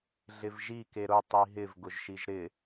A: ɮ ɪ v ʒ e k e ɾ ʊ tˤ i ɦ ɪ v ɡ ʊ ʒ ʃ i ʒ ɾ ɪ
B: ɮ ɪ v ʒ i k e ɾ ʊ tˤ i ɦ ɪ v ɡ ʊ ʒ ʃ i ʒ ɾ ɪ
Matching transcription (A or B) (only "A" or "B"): B